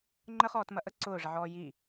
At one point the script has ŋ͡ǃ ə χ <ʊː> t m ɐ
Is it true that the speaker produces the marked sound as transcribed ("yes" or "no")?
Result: no